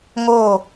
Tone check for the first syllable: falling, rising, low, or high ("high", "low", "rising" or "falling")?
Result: falling